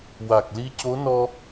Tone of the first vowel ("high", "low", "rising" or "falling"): low